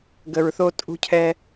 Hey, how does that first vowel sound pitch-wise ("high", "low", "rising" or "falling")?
low